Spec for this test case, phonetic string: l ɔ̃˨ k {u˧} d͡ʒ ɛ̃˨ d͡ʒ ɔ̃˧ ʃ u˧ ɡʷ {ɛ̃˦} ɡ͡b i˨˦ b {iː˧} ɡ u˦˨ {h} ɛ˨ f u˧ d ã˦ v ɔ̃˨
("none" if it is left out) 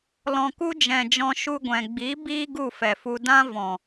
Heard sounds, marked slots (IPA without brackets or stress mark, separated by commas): u˧, ɛ̃˨, iː˦, f